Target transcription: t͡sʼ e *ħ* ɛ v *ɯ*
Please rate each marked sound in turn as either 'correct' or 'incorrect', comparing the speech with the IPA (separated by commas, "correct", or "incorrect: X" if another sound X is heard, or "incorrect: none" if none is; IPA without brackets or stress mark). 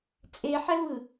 correct, correct